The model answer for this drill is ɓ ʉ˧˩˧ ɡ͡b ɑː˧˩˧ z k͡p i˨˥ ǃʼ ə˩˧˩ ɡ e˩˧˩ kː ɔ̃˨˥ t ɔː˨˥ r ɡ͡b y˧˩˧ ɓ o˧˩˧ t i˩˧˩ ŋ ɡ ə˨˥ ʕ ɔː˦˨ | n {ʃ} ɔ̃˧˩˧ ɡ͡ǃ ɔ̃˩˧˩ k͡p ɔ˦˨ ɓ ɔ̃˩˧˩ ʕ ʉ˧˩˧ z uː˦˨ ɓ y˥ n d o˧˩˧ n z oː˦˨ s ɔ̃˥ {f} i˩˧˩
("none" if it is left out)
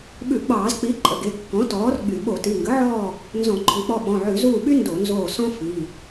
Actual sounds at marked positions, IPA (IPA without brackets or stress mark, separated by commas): z, f